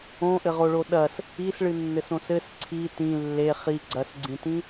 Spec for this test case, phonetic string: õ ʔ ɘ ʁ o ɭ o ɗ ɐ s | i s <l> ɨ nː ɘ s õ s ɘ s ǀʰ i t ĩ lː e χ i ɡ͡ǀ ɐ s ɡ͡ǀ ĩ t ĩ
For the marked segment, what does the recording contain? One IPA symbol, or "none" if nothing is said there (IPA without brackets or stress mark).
ɭ